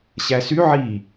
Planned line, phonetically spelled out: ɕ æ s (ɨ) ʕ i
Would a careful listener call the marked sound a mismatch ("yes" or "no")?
yes